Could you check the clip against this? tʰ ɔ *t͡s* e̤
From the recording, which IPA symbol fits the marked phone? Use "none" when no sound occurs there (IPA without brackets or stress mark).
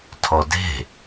d